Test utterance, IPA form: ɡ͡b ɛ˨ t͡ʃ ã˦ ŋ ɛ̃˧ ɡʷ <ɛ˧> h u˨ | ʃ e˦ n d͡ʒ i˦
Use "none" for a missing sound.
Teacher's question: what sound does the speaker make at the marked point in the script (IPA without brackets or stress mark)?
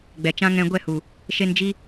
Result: ɛ˦˨